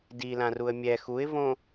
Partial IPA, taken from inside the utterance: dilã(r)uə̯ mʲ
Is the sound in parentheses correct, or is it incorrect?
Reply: correct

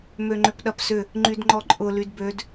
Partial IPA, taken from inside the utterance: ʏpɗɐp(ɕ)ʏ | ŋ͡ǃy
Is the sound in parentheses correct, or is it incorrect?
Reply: incorrect: s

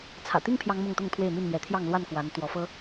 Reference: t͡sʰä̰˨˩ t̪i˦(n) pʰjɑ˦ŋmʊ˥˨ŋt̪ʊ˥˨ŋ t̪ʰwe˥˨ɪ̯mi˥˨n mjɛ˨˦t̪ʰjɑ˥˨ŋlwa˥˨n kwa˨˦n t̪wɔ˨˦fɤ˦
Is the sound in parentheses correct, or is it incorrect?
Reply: incorrect: ŋ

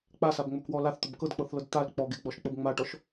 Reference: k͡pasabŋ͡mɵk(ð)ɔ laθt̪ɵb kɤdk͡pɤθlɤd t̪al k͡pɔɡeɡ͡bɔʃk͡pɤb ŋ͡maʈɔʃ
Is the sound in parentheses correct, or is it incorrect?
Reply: incorrect: w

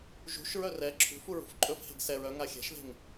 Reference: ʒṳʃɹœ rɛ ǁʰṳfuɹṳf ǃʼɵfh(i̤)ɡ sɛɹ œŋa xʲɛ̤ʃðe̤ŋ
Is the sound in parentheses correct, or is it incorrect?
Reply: incorrect: e̤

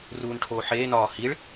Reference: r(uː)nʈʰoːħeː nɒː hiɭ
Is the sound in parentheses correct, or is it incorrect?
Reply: correct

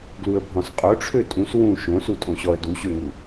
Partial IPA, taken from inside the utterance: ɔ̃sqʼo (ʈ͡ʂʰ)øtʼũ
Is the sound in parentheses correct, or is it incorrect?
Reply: correct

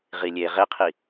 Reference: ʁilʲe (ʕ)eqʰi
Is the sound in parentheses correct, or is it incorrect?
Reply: incorrect: ʁ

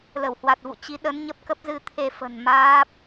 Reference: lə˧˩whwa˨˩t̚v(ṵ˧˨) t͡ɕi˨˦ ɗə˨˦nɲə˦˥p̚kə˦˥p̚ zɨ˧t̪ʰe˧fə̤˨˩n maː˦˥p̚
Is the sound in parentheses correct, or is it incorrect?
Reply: correct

